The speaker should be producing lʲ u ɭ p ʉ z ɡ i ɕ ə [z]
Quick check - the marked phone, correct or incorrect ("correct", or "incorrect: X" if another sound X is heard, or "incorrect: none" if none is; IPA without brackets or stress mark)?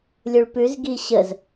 correct